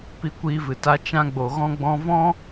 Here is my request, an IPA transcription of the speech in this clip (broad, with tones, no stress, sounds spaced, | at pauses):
p i˧ kʷ iː˧ v ɨ˨ t a˧ t͡ʃ ã˧ ɡ͡b o˨ ɣ ɔ̃˧ ɡ͡b ɔ̃˧ v ɔ̃˦